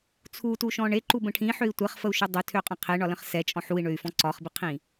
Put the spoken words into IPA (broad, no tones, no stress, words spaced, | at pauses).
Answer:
t͡sʰutuʃɔ̃ ɳeǃubə̃ ʈʰĩħøi̯ tʷɛχfəu̯ʃø dˤøtʰøqʼə̃ qʰeɳɒlə̃χ sɛt͡ʃʼɔ̃ ħui̯ɳøy̯fɔ̃ ǀɒχbiqʰĩ